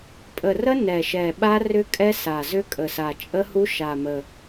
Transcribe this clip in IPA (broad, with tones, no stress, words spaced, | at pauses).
pʼə˨˩rə˦˥ nɛ˨˩ʃɛ˨˩ ɓa˦˥rʏ˦˥kʼɛ˦˥ sa˨˩zʏ˦˥ kʼə˨˩sa˨˩ t͡ʃʼə˦˥hu˦˥ ʃa˨˩mə˨˩